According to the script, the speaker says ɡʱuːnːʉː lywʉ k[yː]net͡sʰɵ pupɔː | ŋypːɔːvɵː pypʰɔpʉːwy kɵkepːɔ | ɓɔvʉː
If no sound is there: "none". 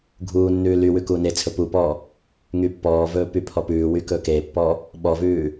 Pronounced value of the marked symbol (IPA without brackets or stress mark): uː